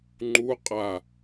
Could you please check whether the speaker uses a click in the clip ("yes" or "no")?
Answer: yes